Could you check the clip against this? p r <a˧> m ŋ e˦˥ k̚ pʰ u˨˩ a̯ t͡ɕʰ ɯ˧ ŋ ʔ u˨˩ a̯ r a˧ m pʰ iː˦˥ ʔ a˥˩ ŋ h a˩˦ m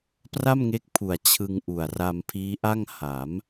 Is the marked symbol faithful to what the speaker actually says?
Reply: no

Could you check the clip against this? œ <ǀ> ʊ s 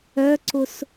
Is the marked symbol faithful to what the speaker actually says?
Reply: yes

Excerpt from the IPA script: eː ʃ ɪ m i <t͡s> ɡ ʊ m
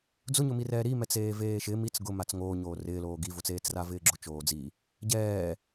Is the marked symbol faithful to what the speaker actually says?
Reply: yes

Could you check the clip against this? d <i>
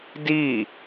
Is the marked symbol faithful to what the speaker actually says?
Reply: yes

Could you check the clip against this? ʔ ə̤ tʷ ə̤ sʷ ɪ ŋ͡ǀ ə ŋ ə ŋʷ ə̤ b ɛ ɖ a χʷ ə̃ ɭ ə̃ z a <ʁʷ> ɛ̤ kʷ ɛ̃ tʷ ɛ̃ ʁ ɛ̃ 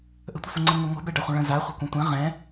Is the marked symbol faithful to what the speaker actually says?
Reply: no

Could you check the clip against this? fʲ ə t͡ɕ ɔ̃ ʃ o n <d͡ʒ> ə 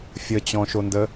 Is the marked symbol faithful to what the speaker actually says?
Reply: no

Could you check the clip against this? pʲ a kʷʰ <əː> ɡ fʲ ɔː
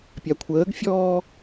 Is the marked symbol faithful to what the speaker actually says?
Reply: yes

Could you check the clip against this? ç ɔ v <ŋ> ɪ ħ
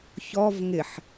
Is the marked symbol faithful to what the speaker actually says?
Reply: yes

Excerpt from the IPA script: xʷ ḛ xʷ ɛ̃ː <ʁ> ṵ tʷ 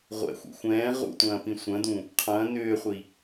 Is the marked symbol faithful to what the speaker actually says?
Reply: yes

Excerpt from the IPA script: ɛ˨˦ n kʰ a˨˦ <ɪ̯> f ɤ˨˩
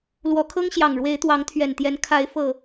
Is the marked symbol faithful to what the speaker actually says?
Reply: yes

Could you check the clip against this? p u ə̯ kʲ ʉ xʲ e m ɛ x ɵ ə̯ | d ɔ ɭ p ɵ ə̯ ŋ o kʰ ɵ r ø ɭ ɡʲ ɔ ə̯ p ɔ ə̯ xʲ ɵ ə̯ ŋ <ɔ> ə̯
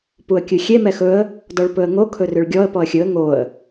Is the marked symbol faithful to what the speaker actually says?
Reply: no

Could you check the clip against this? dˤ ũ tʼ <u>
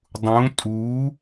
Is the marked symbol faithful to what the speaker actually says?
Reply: yes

